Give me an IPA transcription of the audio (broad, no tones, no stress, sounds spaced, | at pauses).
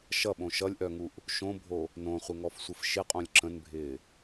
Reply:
ʃ ʌ ɓ õ ʃ ʌ lʲ ʔ œ ŋ u ʔ | ʃ õ bʱ o | n õ χʷ ɪ ŋ ɔ f sʷ ə f ʃ ɪ qʼ õ lʲ ǁ ə̃ n bʱ ɪː